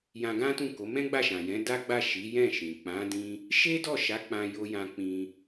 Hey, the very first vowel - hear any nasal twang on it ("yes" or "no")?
yes